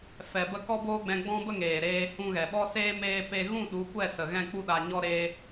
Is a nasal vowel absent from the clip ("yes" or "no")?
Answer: no